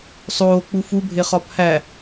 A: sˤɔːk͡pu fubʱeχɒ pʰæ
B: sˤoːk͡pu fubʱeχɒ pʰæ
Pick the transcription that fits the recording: B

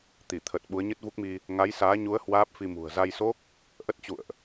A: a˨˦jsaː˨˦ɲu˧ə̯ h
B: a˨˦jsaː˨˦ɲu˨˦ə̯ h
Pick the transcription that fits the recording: B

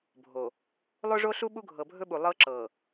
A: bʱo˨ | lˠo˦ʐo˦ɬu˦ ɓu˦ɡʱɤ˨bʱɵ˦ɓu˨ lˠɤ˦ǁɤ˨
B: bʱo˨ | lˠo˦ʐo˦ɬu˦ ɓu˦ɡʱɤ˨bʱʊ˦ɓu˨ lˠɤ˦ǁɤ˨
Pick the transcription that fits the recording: A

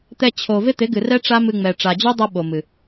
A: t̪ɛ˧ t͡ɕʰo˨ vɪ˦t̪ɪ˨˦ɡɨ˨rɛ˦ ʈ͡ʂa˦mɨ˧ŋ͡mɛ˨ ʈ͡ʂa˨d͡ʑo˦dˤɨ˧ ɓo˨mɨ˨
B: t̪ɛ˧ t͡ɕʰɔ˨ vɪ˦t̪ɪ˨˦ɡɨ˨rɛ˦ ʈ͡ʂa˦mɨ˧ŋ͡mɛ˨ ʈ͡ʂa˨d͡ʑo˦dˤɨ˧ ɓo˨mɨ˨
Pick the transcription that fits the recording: A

